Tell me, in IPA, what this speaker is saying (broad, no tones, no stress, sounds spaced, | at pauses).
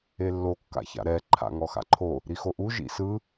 e lː o kː a̰ ç a̰ ɾ ɛ ǃʰ a̰ ŋ ɔ x a̰ ǃʰ o | ɾ i x o ʔ u ʒ ḭ s ɯ